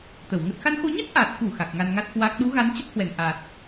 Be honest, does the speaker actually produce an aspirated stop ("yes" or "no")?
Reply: no